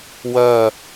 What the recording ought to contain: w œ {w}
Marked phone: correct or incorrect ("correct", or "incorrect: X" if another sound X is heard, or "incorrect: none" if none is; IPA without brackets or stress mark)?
incorrect: none